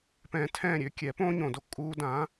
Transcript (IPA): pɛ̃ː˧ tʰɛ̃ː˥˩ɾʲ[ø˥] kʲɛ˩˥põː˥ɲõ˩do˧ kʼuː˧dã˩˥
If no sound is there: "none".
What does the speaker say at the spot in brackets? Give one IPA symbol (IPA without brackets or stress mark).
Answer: ø˥